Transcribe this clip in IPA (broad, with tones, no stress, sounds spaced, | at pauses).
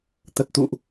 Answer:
t̪ ə˨˩ t̚ t̪ ṵ˧˨ ʔ